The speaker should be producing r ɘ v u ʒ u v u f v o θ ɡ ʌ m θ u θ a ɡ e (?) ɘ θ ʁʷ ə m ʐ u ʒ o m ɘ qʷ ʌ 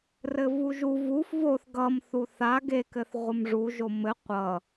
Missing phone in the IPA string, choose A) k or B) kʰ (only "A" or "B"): A